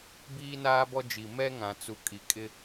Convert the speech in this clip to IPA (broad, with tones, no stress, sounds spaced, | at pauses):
b iː˦ n aː˦ b ɔ˦ d͡ʒ i˨ m ɛ˦ ŋ ã˨ t͡s u˨ kʼ i˨ kʼ ɪ˦